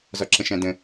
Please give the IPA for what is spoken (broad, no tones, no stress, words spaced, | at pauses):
zɒǁə̃ʃæ̃də̃